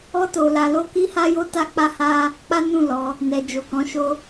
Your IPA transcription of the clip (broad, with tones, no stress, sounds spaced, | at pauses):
ɔ˦ t o˧ l a˧ l o˦ k i˦ h a˦ j o˦ t a˦ k͡p a˦ h a˦ | k͡p a˦ n ũ˦˨ l ɔ˨˦ | n ɛ˨ d͡ʒ o˨ k ɔ̃˨˦ ʃ o˧